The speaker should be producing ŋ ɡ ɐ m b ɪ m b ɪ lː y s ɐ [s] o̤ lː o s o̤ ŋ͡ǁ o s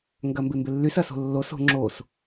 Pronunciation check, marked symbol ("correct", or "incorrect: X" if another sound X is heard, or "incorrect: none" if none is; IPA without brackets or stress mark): correct